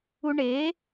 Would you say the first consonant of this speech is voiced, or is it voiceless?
voiced